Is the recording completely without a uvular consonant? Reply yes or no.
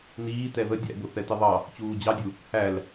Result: yes